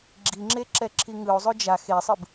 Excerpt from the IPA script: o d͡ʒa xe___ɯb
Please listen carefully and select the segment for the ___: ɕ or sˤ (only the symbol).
sˤ